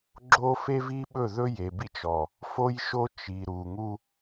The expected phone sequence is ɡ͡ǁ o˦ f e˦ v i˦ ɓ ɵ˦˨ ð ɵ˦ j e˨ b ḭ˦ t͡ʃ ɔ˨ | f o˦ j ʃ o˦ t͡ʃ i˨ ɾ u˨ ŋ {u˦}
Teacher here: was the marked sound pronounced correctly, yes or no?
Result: yes